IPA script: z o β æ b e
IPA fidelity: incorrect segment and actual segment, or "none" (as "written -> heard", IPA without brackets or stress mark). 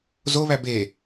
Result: none